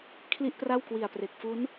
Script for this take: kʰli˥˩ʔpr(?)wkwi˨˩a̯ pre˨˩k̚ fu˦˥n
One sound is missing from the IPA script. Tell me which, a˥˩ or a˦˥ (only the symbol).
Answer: a˥˩